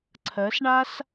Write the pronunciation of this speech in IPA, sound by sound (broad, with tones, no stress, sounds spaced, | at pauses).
ǀʰ ɜ˧˥ s ɳ a˥ s